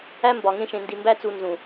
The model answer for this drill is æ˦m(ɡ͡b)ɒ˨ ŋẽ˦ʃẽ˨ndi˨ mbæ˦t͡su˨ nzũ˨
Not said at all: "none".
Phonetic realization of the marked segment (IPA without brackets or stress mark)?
b